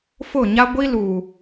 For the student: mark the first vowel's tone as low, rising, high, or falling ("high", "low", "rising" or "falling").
falling